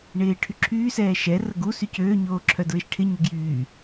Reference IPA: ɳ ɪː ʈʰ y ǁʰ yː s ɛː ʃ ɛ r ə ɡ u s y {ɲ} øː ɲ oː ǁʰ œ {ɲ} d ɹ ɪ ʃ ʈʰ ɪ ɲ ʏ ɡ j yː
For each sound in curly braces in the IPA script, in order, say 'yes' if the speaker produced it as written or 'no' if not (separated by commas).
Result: no, no